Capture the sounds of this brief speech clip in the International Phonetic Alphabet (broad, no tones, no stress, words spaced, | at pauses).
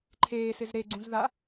ǃʰeːsɪz ɾeɡ͡ǀũz ða